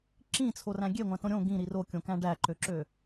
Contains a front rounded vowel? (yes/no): yes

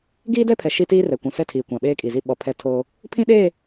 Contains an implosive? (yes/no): yes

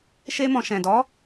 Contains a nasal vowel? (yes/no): yes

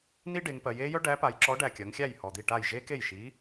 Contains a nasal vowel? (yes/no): no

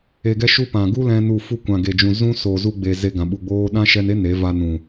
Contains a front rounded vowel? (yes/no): no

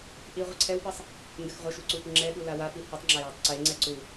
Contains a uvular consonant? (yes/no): yes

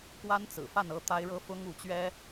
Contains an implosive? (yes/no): no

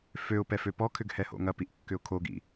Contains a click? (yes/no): no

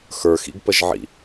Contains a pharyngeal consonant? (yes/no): yes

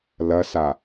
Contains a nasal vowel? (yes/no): no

